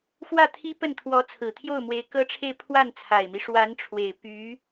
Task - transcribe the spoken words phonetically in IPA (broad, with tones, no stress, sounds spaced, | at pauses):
x w ä˥˩ t̪ʰ i˥ p ə˥˩ n t̪ʰ w ɔ˧˥ t͡sʰ ɹ̩˨˩ t̪ʰ j o˥˩ ʊ̯ m w e˧˥ ɪ̯ k ɤ˥ ʈ͡ʂʰ e˥˧ ɪ̯ pʰ w a˥˩ n t͡sʰ a˨˩ ɪ̯ m i˦ ʂ w a˧˥ n ʈ͡ʂʰ w e˨˩ ɪ̯ p y˧˥